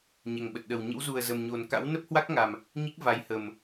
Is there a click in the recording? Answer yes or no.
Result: no